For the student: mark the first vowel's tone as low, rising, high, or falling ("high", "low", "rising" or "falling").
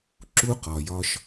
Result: high